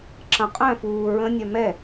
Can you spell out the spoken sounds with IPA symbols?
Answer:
ǁ ɐ̃ qʼ œ̃ f uː ɹ ə̃ nʲ œ m ɛ

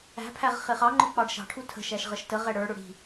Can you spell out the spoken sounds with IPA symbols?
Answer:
æ̤ pʰ æ ʁ χ ɪ χ ɑ ŋ͡ǃ ʊ k͡p ɑ ɖ ʃ ɑ̤ ʈʰ u tʰ ə̤ ʃ æ ʃ ʁ ə ʃ t ə ʁ ɛ ɽ ə˞ ɽ ʊ ɽ i̤

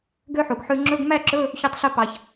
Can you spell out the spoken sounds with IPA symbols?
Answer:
ɡ ø˥ ħ u˩ ɡ ħ ʉ˧ ŋ͡ǁ ɵ˧˥˧ ɡ m æ˥˧ ǁ ɵ˧˥˧ | ç ø˧ tˤ ɬ ɵ˧ p ɑ˩ ç

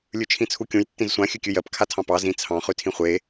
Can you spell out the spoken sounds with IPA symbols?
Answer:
lʲ ʉ t͡ʃʰ ĩ t͡sʰ u kʲ ũ j tː ĩ z sʷ ã xʲ ʉ kʲ ʉ j ɜ p kʰ a tʰ ɑ̃ p ɑ z ĩ t͡sʰ ɑ̃ χ ʉ tʰ ĩ χʷ e

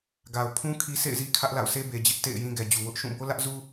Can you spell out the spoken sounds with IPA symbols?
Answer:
ɡ a˨ ʊ̯ pʰ ũ˦ kʰ i˦ sʰ ḛ˦˨ ɪ̯ z i˦ kʰ ä˦ ʔ l a̰˦˨ ʊ̯ sʰ e˦ b e˨ d͡ʑ ɪ˦ ʔ t ḛ˦˨ ɪ̯ j ĩ˦ ɡ ɛ˨ d͡ʑ u˨ w ʊ˦ ʔ ʃ ũ˦˨ b o˦ l ä˦ ʔ z u˦

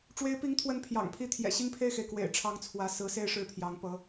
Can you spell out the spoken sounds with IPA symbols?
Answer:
ʈ͡ʂ w e˧˥ ɪ̯ p i˧˥ ŋ t̪ʰ w ə˧˥ n pʰ j ɑ̰˨˩ ŋ pʰ i˥˩ t̪ʰ j ɛ̰˨˩ ɕ i˥ ŋ pʰ e˥˩ ɪ̯ x e˩ ɪ̯ k w ḛ˨˩ ɪ̯ ʈ͡ʂʰ ɑ˧˥ ŋ t͡sʰ w ä˧˥ s ɹ̩˧˥ s e˥˧ ɪ̯ ʂ ɻ̩˥˩ pʰ j ɑ˧˥ ŋ p ɤ˧˥

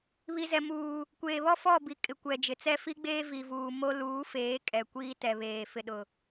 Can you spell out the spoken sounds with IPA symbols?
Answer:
β i˨ z ɛ˨ m uː˨ | kʷ eː˨ β ɔ˦ f ɔ˦˨ b i˨ kʼ ɪ˨ kʷ ɛ˨ d͡ʒ ɪ˨ t͡s ɛ˦ f i˦ ɡ͡b eː˦ v i˨ v uː˨ m o˦ l uː˨˦ f eː˨˦ kʼ ɛ˨ kʷ iː˦ t ɛ˨ β eː˨ f ɪ˨ ɗ ʊ˨

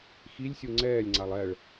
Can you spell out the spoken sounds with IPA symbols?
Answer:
x i lʲ sʲ u ŋ͡ǀ ɛː lʲ ŋ͡ǀ a lˠ ɛ ɭ

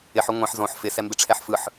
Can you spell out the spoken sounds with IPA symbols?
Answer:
ɪ ħ ɵ ŋʷ ɛ̃ ħ z õ ħ f ɪ s ɛ m b ɪ ʈ͡ʂʰ ɛ ħ f ɯ ħ

